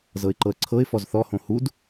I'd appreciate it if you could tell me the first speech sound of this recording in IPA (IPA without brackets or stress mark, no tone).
z